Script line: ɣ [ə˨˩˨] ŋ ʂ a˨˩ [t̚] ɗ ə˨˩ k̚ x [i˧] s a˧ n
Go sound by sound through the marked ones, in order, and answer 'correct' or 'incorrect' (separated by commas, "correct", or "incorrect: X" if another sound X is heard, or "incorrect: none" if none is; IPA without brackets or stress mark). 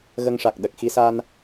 incorrect: ə˧, incorrect: k̚, correct